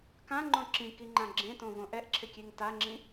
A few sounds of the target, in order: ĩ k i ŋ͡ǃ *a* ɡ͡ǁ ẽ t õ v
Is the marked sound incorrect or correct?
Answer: incorrect